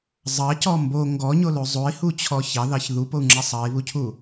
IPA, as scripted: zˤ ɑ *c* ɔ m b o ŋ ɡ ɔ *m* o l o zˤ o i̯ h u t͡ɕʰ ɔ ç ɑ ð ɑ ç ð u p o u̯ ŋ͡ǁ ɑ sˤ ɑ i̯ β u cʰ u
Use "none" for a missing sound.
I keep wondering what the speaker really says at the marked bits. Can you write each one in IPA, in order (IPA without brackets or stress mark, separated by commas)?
c, ɲ